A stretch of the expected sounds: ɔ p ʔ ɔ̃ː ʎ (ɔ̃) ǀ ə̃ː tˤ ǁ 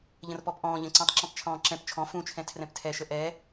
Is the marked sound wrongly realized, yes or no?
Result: yes